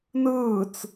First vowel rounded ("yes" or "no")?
no